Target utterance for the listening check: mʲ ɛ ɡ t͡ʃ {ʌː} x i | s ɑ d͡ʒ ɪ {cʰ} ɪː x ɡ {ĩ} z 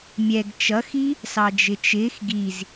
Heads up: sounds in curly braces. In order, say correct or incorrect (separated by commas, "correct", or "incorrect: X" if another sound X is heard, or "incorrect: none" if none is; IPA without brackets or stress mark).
incorrect: ʌ, incorrect: t͡ʃ, incorrect: i